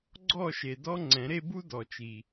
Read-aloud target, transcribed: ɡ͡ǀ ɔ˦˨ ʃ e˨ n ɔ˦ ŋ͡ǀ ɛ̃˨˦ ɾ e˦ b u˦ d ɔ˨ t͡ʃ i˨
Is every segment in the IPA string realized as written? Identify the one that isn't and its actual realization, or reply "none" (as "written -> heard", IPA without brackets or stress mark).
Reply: n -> d